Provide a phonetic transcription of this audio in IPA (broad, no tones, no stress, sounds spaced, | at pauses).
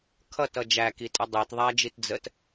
kʰ ʌ t ʌ d͡ʒ æ k i tʼ ʌ dˤ e t ðˤ æ d͡ʒ i t d͡z ə t